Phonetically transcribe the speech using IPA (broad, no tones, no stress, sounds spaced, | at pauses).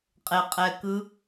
qʼ e qʼ ɛ k ɯ